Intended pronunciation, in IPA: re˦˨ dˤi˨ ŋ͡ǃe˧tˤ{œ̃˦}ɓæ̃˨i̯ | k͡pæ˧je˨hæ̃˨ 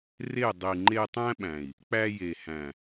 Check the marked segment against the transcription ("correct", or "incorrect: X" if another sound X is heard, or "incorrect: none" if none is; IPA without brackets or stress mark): incorrect: æ̃˦